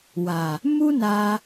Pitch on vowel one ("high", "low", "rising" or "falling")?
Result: low